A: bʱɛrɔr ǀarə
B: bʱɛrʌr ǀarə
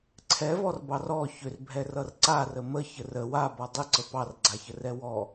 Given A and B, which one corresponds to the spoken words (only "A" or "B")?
B